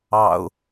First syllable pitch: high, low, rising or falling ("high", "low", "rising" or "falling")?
low